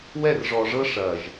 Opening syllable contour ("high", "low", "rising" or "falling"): falling